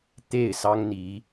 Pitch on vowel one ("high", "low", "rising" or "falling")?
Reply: falling